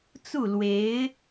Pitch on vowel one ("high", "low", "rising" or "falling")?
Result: falling